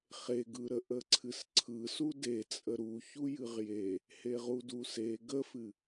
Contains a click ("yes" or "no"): yes